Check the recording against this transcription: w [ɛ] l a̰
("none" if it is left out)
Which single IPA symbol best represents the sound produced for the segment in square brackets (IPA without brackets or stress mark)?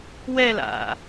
ɛ